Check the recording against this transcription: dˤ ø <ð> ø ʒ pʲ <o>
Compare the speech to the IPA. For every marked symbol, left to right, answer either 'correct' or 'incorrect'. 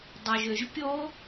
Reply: incorrect, correct

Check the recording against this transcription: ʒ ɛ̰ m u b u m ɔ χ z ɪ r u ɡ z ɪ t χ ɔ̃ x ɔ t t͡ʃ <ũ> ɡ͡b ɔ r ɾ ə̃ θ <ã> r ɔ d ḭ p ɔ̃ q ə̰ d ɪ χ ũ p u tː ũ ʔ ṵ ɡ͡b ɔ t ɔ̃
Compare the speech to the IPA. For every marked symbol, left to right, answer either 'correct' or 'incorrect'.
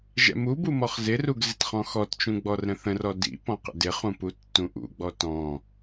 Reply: correct, incorrect

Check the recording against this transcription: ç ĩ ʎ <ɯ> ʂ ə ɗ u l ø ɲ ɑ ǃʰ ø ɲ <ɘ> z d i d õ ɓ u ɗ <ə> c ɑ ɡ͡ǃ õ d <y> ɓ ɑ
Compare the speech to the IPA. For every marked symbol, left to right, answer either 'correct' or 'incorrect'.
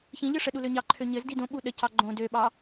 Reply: correct, correct, correct, incorrect

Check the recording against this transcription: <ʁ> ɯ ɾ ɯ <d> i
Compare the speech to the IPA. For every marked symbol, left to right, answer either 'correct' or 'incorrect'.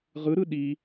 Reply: correct, incorrect

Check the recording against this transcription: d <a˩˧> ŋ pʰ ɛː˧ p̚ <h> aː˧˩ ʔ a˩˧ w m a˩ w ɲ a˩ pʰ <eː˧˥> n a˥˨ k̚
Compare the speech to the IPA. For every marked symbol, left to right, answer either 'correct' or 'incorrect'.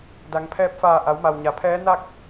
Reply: correct, incorrect, incorrect

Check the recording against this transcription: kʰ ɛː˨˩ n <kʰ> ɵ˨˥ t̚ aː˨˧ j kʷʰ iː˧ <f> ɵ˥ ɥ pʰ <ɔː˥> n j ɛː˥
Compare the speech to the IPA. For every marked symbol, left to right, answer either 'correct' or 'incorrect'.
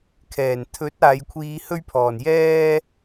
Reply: incorrect, incorrect, incorrect

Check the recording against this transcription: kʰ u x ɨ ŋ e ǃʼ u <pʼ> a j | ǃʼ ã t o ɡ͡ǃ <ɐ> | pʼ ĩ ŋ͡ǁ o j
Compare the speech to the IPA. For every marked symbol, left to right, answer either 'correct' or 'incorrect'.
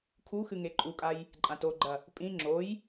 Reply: incorrect, correct

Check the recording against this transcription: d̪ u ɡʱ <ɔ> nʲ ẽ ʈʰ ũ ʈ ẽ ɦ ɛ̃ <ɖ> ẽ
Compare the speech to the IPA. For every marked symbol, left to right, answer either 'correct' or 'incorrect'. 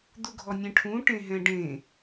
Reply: correct, correct

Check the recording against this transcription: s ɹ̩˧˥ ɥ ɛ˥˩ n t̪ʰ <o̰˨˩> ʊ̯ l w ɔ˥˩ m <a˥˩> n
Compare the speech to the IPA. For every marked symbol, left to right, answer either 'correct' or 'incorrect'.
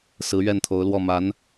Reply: incorrect, incorrect

